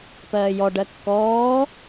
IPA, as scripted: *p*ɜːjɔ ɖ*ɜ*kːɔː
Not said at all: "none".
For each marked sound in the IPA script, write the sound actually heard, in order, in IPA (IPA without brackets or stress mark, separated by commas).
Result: p, ɜ